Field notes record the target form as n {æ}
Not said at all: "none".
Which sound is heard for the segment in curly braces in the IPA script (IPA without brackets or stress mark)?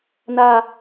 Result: a